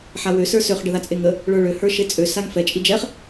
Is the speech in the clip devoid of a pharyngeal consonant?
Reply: no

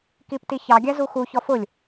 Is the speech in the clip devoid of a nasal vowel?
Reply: yes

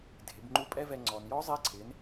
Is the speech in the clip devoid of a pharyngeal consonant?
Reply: yes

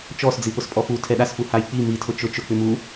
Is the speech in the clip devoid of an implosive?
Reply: no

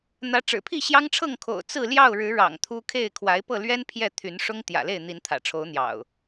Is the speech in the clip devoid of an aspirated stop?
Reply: no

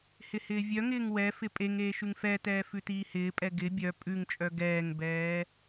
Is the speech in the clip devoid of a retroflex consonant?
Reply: yes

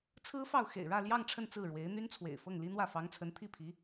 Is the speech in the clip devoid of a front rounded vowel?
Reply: no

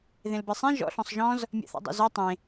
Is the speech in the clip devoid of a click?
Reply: yes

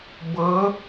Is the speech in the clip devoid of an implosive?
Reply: yes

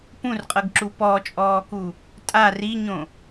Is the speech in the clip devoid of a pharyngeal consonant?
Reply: yes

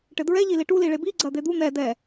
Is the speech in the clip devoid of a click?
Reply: no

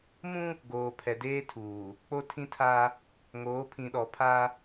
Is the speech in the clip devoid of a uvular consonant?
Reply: yes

